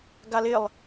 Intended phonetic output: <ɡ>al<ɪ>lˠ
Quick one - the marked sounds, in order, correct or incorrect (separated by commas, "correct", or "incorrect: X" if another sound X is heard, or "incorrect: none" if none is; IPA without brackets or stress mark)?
correct, correct